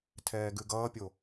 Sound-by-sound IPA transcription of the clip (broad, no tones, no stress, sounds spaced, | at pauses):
tʰ ɛː ɡ ʉ ɡ ʌː pʲ o